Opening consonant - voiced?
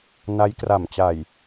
yes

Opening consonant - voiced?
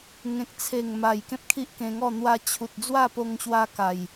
yes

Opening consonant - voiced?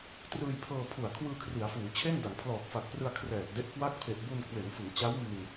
no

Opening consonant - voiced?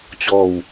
no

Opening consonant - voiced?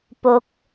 no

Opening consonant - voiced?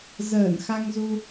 yes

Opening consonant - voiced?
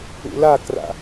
yes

